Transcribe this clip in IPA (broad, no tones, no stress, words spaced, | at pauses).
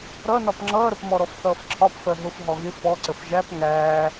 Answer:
ɾʌnɒp ŋ͡ǁʌːɾəpmɔɾɔf θʌːfǁʰɒpfɜ ɦʊf ɦɔɣɪ fɔǀəf ʒæp ŋæː